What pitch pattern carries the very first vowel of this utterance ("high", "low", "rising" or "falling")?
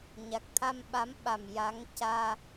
low